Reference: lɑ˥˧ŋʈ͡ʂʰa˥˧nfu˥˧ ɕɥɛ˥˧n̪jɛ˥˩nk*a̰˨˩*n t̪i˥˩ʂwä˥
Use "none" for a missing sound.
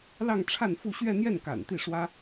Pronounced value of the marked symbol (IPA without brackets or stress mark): a̰˨˩